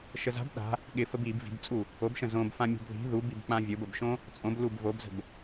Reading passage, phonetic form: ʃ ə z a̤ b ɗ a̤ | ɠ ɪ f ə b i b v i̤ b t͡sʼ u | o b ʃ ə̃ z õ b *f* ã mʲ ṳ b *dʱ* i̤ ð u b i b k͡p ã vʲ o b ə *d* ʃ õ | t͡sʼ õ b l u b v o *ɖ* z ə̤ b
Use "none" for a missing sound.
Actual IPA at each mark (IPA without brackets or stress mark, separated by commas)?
f, ð, b, b